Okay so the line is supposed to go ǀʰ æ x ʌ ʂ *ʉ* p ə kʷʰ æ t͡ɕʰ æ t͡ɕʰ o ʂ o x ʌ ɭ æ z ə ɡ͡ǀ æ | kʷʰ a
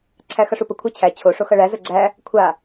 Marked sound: incorrect: u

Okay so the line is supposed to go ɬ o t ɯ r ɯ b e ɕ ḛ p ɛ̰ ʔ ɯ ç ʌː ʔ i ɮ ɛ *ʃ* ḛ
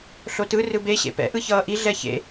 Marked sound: incorrect: ç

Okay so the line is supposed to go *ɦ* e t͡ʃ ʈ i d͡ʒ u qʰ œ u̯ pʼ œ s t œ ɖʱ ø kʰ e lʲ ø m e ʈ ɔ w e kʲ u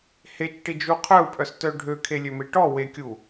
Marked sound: incorrect: h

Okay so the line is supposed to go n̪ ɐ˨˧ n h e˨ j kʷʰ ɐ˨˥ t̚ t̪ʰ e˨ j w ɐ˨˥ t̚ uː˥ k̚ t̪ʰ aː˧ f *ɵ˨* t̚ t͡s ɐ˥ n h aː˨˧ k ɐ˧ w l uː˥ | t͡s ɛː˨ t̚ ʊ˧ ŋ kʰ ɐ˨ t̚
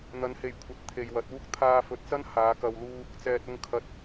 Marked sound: correct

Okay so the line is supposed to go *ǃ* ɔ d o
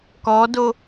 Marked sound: incorrect: k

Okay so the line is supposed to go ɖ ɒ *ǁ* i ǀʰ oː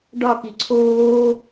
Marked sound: incorrect: k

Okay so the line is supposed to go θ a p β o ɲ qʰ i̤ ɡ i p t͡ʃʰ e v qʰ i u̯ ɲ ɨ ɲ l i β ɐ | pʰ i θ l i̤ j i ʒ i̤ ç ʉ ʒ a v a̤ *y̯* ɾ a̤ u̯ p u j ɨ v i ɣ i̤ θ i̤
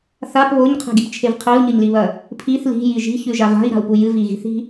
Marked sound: incorrect: i̯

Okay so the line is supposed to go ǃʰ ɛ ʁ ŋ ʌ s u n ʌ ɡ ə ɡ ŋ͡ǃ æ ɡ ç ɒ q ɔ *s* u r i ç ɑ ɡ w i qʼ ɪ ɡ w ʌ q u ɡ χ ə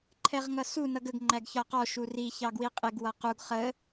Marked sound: incorrect: ʃ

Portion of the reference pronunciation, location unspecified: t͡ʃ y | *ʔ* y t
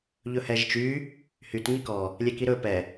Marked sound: incorrect: h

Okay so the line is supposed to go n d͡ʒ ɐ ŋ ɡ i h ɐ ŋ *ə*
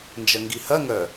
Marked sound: incorrect: œ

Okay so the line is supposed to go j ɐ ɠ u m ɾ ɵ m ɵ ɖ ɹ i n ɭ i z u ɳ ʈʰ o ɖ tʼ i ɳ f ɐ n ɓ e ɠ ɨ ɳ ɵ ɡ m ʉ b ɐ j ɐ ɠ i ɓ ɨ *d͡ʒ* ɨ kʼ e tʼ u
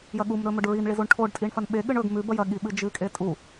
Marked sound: correct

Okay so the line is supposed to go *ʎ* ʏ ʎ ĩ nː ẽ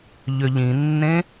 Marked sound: correct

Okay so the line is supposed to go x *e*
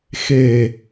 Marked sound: correct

